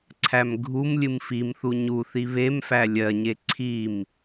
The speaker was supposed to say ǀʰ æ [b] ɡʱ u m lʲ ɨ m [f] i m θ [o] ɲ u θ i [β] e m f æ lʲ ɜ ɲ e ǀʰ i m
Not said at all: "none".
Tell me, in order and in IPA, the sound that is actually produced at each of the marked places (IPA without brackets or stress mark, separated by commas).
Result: m, f, u, β